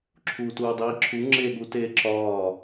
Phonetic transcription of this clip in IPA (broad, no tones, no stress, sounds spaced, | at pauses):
ǁʰ uː t uː dˤ iː ǁʰ u ŋ͡ǁ e ɠ uː t eː ǁ ɒː